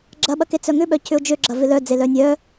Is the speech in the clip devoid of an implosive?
no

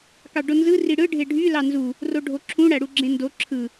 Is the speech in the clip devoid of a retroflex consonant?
no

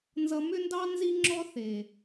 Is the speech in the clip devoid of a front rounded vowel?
no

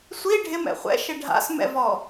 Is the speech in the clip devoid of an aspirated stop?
yes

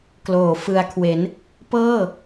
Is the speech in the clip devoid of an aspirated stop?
no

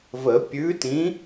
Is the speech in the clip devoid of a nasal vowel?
no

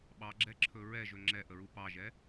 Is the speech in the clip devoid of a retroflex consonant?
yes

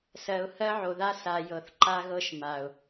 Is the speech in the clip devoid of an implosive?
yes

